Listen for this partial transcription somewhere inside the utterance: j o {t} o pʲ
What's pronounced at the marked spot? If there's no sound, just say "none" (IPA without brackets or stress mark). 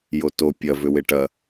t